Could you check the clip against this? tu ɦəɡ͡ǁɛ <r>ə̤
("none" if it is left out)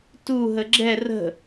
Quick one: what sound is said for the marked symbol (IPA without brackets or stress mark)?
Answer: r